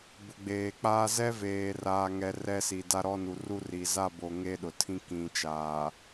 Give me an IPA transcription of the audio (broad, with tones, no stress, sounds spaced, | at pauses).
b ʊ˨ ɡ͡b eː˨ k͡p aː˦ z ɛ˦ v eː˨ r aː˨ ŋ ɛ˨ r ɛ˦ s i˨ d a˦ ɾ ɔ˦ n u˨ r u˦ r i˨ z a˦˨ b o˨ ŋ e˦ ɗ ʊ˨ tʰ ĩ˦ k ĩ˨ t͡ʃ aː˨